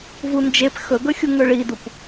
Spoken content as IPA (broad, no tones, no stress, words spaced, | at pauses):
vund͡ʒep xɵɡɵxʲu ŋɵɭidup